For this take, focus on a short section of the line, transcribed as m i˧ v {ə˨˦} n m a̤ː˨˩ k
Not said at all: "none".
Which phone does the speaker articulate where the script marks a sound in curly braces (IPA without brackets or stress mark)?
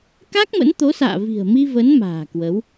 ə˨˦